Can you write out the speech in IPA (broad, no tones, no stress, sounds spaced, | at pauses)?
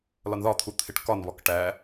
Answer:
l ɒ n ð ɒ t̪ʰ u t̪ʰ ɪ ʈ k ɒ n β ɒ k ʈ æ